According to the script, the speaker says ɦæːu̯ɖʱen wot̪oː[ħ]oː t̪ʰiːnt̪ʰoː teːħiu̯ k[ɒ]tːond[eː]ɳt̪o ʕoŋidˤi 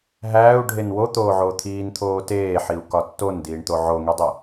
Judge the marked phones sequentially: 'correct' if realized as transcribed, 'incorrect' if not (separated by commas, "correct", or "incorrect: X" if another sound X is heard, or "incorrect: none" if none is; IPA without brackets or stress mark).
incorrect: ʕ, correct, incorrect: iː